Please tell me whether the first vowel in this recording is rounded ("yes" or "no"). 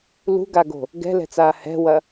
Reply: yes